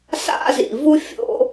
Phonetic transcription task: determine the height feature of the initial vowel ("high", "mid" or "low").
low